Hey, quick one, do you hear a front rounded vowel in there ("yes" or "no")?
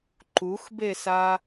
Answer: no